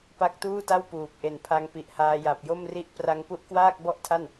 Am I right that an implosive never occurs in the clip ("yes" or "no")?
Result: yes